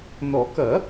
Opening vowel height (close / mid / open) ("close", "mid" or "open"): mid